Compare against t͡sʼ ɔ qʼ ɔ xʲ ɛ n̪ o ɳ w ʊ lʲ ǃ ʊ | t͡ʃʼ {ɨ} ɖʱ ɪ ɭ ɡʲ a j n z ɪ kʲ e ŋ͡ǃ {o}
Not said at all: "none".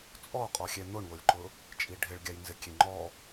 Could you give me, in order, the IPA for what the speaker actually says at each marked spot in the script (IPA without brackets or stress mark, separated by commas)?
i, ɔ